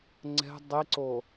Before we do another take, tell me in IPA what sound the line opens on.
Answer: ŋ͡ǀ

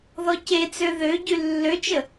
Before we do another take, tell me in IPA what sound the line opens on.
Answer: ð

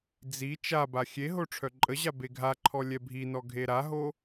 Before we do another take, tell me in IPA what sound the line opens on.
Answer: d͡z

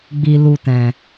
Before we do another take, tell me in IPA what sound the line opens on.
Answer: ɡ͡b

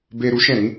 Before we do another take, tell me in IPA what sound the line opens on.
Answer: b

